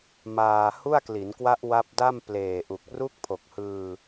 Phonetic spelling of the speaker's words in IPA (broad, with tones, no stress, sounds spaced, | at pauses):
m aː˧ h u˥˩ a̯ k l i˩˦ n k w a˦˥ ʔ w a˦˥ p̚ d a˥˩ m p l eː˨˩ ʔ u˨˩ k̚ r u˥˩ k̚ pʰ o˨˩ k̚ h ɯː˧